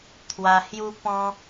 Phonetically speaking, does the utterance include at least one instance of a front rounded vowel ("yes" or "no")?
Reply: no